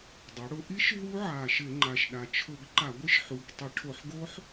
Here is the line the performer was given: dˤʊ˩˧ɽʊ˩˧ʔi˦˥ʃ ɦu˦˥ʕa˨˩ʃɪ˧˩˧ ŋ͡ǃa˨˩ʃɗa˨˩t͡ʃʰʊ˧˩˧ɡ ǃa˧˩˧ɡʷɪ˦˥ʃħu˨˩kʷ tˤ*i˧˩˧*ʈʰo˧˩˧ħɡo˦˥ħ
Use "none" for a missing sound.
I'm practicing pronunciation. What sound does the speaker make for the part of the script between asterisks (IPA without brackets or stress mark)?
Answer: i˧˩˧